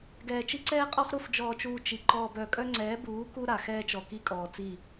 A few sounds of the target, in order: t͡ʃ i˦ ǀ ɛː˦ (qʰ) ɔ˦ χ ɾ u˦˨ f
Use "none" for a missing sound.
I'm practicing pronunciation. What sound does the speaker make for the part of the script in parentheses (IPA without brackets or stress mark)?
qʼ